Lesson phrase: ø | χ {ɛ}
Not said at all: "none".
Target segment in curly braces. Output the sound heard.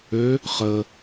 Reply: ə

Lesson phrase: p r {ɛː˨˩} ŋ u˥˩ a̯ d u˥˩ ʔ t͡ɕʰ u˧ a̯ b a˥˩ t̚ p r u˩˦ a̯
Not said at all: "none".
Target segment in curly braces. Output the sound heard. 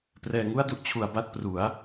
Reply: ɛː˧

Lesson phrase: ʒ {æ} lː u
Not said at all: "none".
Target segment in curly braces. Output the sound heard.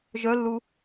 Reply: œ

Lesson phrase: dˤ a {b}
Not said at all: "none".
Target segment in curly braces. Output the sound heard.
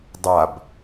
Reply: b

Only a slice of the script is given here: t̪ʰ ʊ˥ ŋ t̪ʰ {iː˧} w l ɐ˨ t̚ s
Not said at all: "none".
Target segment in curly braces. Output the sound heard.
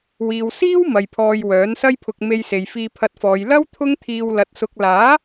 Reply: iː˧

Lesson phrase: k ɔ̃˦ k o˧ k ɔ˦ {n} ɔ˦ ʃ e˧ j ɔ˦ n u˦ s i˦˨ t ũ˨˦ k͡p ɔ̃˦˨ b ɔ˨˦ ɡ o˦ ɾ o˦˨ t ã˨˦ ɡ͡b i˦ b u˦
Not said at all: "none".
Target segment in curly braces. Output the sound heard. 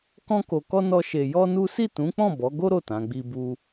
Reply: n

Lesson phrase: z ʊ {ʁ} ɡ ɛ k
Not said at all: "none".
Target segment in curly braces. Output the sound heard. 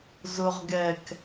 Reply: ʁ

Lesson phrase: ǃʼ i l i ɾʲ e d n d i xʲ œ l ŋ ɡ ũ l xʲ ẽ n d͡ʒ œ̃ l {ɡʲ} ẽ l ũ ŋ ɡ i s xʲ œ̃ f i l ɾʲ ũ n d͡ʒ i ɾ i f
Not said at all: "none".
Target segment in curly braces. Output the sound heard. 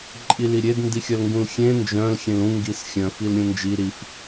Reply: xʲ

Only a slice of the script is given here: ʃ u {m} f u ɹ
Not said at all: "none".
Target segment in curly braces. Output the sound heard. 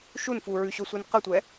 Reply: n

